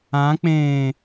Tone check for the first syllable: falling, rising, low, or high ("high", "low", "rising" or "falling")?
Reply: rising